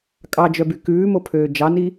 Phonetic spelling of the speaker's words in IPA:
kʼɑd͡ʒœby kʉːmopʰøː d͡ʒɑni

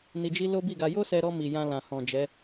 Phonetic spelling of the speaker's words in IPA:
ni˧d͡ʒi˦ lo˦bi˦˨ɡa˧ jo˦sɛ˧ɾɔ˧mi˨ jã˧ lã˨hɔ̃˨ d͡ʒɛ˨˦

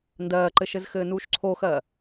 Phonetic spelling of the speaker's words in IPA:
ndɜːǃɘʃɘz xɘːnuːʃǀʰoxɜ

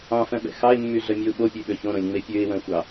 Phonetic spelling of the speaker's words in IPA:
ɑ̃fœ̃ɓɛ̰ xɑɪ̯mːyɮœmʲøʊ̯ ɓopʲøɓø çõɾõlʲŋ͡me pʲøɪ̯wœ̃xʷɑ

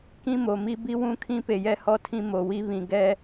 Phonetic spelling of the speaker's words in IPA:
kĩ˦mo˨mi˦bi˦ wũ˦˨kʰĩ˦pe˨jɛ˦ hɔ˦tʰĩ˦mo˨wi˦ βĩ˨ ɡɛ˦

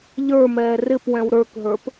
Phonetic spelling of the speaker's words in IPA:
ʎə˞mɛː rɪpwɛ̃w ɾə˞kɦə˞p

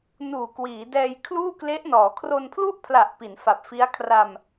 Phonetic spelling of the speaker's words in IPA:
nuː˨˩kwiː˩˦dɛː˧j kʰluː˥˩kle˦˥ʔnɔː˩˦ kʰro˧n pʰlu˥˩ʔpʰla˨˩ʔ pi˩˦nfa˨˩p̚fi˦˥a̯kʰra˧m

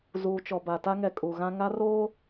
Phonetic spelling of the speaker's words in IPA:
zuː˨t͡ʃɔ˨ba˨ ta˦ŋɛ˨ kʼu˨ ɣã˦ ŋa˦roː˦

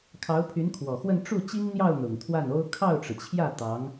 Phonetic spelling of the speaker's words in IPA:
kʰɑ˧˥ʊ̯pʰy˧˥nkʰwɔ˨˩xwə˥˧n ʈ͡ʂu˥˩ t͡ɕi˥ŋn̪jɑ˥˩ʊ̯ n̪ʊ˨˩ŋt̪ʰwa˥˩no˥ʊ̯ kʰɑ˥˩ʊ̯ʈ͡ʂɻ̩˩t͡ɕʰjä˥˩ t̪ɑ˧˥ŋ

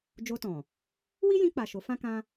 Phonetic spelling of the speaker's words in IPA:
d͡ʒo˧tɔ̃˨ | wi˦jĩ˧k͡pa˨ ʃo˨˦fã˦kã˦

